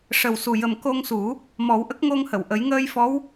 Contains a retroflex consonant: yes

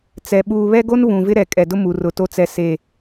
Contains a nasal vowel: yes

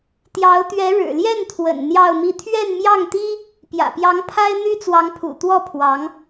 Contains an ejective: no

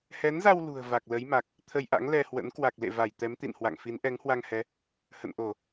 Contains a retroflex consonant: no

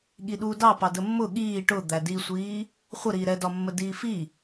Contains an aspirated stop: no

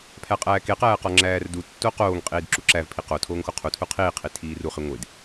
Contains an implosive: no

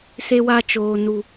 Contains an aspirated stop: no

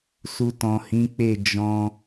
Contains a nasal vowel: yes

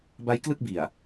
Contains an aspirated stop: no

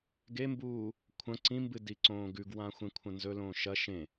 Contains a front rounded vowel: no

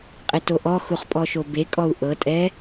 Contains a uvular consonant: yes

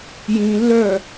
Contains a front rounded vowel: yes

